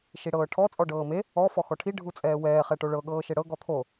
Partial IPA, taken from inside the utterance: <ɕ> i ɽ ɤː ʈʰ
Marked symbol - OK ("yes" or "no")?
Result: no